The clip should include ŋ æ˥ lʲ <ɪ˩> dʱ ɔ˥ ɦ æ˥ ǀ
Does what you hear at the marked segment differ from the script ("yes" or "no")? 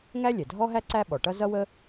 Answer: yes